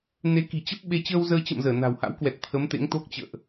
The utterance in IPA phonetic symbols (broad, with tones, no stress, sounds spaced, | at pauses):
n e˨˦ k i̤˨˩ t͡ɕ ə˦˥ p̚ ɓ e˧ t͡ɕ əː˧ w z əː˧ t͡ɕ ə̰˧˨ m z əː˧˩ n a̤˨˩ w h a̰˧˥ w k w ɛ˨˩ t̚ t̪ʰ ə˨˦ m t̪ ḛ˧˥ ŋ t̪ o˦˥ k̚ t͡ɕ ə̰ː˧˨ ʔ